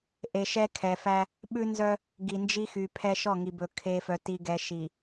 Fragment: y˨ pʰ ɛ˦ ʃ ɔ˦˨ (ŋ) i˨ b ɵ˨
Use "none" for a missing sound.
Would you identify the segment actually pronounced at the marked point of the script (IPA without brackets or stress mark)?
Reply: ŋ